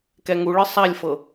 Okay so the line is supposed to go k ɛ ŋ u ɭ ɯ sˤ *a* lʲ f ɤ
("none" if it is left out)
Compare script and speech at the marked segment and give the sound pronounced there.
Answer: a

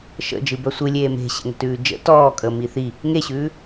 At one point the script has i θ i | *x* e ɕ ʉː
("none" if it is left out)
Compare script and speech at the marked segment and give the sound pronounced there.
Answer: ŋ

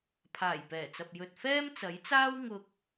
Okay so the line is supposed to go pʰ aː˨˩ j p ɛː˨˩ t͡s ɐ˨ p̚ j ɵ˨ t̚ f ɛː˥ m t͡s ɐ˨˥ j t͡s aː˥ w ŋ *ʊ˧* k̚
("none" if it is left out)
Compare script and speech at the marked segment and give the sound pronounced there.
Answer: ʊ˧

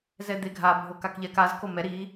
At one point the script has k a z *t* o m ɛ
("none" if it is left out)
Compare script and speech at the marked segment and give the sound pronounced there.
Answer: k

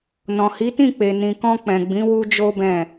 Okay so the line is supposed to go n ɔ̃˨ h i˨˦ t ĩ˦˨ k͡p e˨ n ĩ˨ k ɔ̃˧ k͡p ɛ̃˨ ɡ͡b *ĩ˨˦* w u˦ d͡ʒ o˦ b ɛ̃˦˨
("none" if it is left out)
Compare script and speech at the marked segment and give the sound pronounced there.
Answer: ĩ˨˦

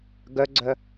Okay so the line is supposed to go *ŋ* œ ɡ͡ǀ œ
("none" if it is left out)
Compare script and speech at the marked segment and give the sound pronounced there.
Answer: ɡ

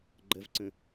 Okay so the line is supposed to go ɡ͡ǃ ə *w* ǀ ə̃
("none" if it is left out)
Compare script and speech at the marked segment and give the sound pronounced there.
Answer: v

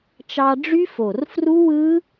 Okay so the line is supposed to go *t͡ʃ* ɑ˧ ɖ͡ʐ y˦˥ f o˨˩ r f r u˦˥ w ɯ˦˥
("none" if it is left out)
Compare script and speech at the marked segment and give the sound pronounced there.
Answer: t͡ʃ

